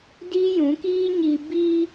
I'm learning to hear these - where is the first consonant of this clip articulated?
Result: tongue tip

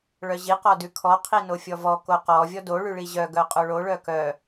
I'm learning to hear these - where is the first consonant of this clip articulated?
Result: retroflex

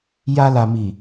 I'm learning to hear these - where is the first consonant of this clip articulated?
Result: palate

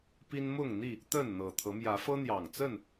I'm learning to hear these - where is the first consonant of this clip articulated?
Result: lips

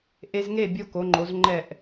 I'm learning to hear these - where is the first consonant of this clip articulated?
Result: throat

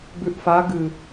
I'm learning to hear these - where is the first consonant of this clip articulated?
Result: lips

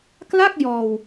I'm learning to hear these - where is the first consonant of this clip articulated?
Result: velum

